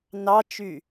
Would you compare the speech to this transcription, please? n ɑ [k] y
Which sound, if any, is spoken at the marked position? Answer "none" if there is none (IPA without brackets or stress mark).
t͡ʃ